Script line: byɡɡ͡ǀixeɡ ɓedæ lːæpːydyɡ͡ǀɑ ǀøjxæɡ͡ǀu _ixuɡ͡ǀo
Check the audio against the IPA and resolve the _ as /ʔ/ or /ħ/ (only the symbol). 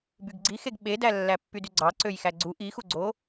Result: ʔ